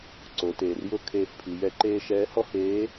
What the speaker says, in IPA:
ǀ o˩˧ t eː˩ r j ʊ˥ kʰ eː˧ f pʰ i˩˧ j ɛ˧˥ ǃ eː˥ ʃ ɛː˧˥ h ɔ˥ h eː˧˥

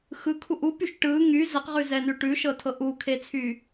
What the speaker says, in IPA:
x ɯ kʰ u ʔ u p y ʃ ʈ ɯ ŋ y z ə q ʁ ʉ z ɛ n ʉ ʈ ʉ ʃ ɤ tʰ ɤ ʔ u kʰ e t͡sʰ y

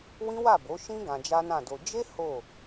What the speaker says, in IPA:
w ĩ˦ w a˦˨ b o˨˦ ʃ ĩ˦ ɡ ã˧ d͡ʒ a˦ n ã˦˨ d o˧ d͡ʒ e˦ h o˦˨

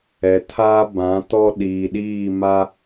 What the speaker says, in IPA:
ɛ˨ tʰ aː˦ b ã˨˦ t ɔ˦ ɗ iː˨ ɗ iː˦˨ m a˦

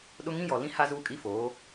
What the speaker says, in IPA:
ɗ ʊ˦ ŋ ĩ˦ j ɔ˨ l ĩ˦ h a˦ z uː˦ kʼ i˦ f oː˨˦

